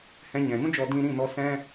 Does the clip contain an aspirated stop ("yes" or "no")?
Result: no